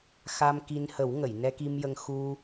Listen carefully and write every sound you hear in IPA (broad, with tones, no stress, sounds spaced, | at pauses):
x a˧ m k i˧ n h ə˨˩˦ w ŋ ə˨˩˨ j n ɛ˧ k i˧ m j ə˧ ŋ x u˧